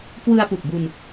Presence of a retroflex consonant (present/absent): absent